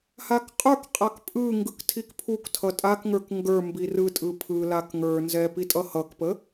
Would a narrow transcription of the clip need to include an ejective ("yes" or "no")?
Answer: yes